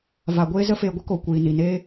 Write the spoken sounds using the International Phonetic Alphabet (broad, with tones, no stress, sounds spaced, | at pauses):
v a˨ ɡʷ eː˧ z ə˧ f eː˨ ɡʷ ə˦ k o˨ kʷ iː˨ n i˨ n eː˦